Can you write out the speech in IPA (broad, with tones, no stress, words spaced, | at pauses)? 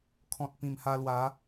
kʰɔ̃˨t̚ pĩ˨˩mha˧lwa˨˦